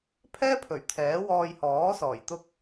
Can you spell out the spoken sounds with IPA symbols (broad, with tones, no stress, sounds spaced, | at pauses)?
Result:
pʰ ɛː˥ pʰ ɵ˨˩ ɥ t̪ʰ ɛː˨˥ w ɔː˧ j h ɔː˨˥ s ɔː˨˩ j t̪ ʊ˧ k̚